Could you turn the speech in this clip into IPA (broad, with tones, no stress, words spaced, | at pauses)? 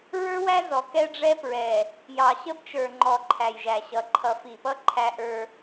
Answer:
ɹə˞˦wæ˦ zɔ˨kɛ˦ɖ͡ʐɛ˦pɹɛ˨ | jɑ˨ɕə˦bt͡ʃə˞˨ŋ͡ǃɔ˨ ǃʰæ˨jʒæ˨ɕʌ˨ ǃʰʌ˨fi˨pʌ˦ ǃʰæ˦ʔə˞˦